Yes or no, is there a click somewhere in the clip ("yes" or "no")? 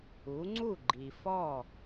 yes